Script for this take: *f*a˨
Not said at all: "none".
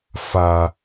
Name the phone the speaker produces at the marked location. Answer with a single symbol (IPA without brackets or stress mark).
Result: f